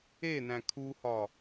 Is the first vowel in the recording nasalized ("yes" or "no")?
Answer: no